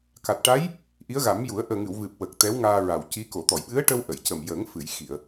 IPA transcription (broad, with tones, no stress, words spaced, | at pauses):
ka˨˩t̚ʈa˧˥j | ʔi˧˥ə̯ɣa˨˩˦mju˨˩˦ə̯ ʔəː˨˩ŋɨ˨˩˨wvɨ˨˩p̚ wə˨˩k̚ t̪ɛ˧˥wŋaː˧ɹa˨˩wci˧˥ ko˨˩˨t̪ɔ˨˩˨jɓɨ˧˥ə̯ʈə˧w ʔə˨˩˨jcə˨˩m jə˨˩˦ŋfɨ˨˩˨jxi˨˩˨ə̯